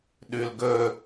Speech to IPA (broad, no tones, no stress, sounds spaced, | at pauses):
ɗ ʉ l ɡ ɵ